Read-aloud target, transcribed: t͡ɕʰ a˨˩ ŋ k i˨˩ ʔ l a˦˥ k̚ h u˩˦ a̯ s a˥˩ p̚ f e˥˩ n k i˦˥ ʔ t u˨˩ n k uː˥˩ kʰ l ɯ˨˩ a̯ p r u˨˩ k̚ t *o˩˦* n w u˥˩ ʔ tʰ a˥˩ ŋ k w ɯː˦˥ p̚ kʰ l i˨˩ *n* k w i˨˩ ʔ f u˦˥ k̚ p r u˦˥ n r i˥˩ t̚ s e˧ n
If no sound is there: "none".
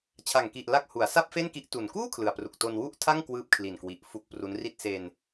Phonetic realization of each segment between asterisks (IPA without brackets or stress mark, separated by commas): o˧, n